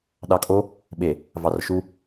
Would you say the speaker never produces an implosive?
no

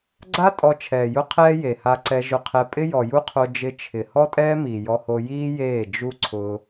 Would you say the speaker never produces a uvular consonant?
no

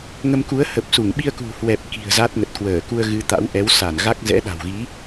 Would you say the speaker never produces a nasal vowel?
yes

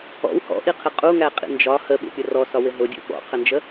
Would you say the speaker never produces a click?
yes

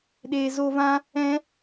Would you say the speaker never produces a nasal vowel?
no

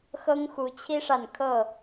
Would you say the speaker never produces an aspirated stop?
no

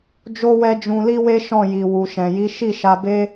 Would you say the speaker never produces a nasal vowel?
no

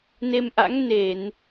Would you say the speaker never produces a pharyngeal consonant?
yes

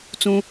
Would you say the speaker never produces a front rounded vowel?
yes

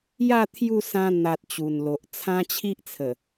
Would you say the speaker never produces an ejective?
yes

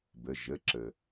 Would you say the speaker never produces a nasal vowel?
yes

